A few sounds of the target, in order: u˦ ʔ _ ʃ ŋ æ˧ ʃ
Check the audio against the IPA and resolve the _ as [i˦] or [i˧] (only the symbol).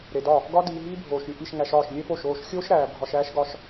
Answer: i˧